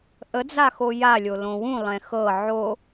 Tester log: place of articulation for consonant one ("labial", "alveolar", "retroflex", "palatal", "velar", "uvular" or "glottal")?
glottal